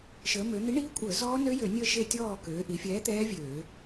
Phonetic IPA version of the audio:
ʃəː˩˧mø˩˧n̪i˨˥ɳiː˦˥ kʷʼəː˧˩˧zɔː˦˥ nø˦˥jø˧˩˧nʲəː˦˨ ʃe˦˨tʲɔː˦˨ køː˩˧ʔi˩˧fʲɛː˨˥ t̪ɛː˦˥vʲøː˧˩˧

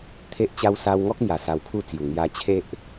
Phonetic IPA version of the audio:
t̪ʰe˦ʔt͡ɕa˦w sa˧wŋɔ˦k̚mja˨˩ sa˧wkʰu˥˧t͡sju˨˩ ŋja˧t͡ɕʰe˦ʔ

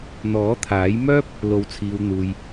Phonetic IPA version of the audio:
n̪ɔː˨˥t̪ʰaː˨˥jmœː˥p̚ | lo˨˧wt͡sʰiː˨wn̪uː˨j

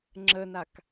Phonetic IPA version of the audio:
ŋ͡ǁənak

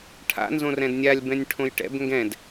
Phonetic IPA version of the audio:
ʈʰa̰ nzõrɛ̃dnʲalʲ bɛ̃nʲʈʰõjʈɛ̰b ŋɡɛ̃d

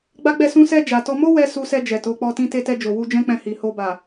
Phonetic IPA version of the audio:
ɡ͡ba˦ɡ͡bɛ˦˨ sũ˧sɛ˧ d͡ʒa˨tɔ˧ mo˦wɛ˧ su˧sɛ˧ d͡ʒɛ˨to˨˦k͡pɔ˧ tĩ˧te˧tɛ˧d͡ʒo˨ wu˧d͡ʒɛ̃˦k͡pɛ̃˧hi˨ ho˧ba˨

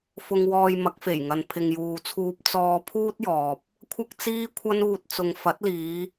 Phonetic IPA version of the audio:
fʊ˧ŋwɔː˧jmɐ˨˥k̚ fe˨˩jŋɐ˨n pʰɪ˨ŋjuː˨t͡sʰuː˧p̚ t͡sɔː˧ pʰuː˥t̚jɔː˨p̚ | kʷʰɐ˥k̚t͡siː˥kʷʰɐ˥nuː˧t̚ t͡sʊ˨ŋfɐ˨˥t̚liː˨˧

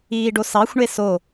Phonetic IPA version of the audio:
iːɖosɑxʷɳe so

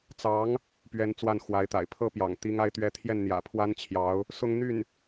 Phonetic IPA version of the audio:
t͡sɑ˧˥ŋ | pɥɛ˧˥n t͡swa˥˩nxwa˧˥ɪ̯t̪a̰˨˩ɪ̯ pʰɤ˥pjɑ̰˨˩ŋ t̪i˥ŋa˥ɪ̯t̪ɥɛ˥ t̪ʰjɛ˥˩nn̪jä̰˨˩pʰwa˥n t͡ɕʰjɑ˧˥ʊ̯ | sʊ˥ŋn̪y˥˩n

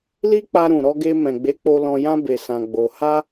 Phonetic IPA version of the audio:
li˦k͡pa˧ɾũ˨ ɾɔ˧ɡe˧ mɛ̃˨ɡ͡be˨˦k͡po˧ lɔ̃˧jã˦ be˧sã˧ɡ͡bo˧ ha˦

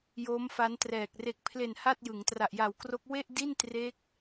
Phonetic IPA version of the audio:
joː˦˥mfa˦˥ntrɛː˨˩k̚ re˨˩k̚pʰle˨˩n ha˥˩t̚jɯ˩˦ŋ tra˨˩ʔja˨˩wkro˦˥k̚ we˥˩ʔdi˥˩n tre˦˥k̚

